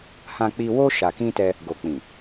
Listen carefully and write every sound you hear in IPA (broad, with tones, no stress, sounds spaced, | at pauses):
h ã˧ k͡p i˧ w o˦ ʃ a˧ k ĩ˦ t ɛ˦ | ɡ o˨ k͡p ĩ˨